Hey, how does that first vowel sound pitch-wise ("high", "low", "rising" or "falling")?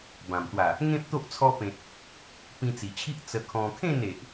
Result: low